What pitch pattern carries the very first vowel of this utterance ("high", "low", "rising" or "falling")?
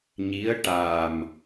rising